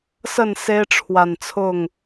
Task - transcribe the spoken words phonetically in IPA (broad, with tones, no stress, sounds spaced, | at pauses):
s ə˥˨ n s e˦ ɪ̯ ʈ͡ʂʰ w a˨˩ n t͡sʰ ʊ˥˨ ŋ